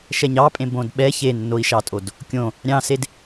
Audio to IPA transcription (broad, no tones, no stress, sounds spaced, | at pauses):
ʃ ɛ ɲ ɑ pʼ ẽ b õ d ɓ ɛ ç e nː o i̯ ʃ ɑ tʼ o d | kʲ õ | ɾʲ ɑ̃ s e d